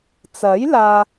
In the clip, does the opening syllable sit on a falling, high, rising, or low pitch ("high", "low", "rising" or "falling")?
rising